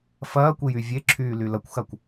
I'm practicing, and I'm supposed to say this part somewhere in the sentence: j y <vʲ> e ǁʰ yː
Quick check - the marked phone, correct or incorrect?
correct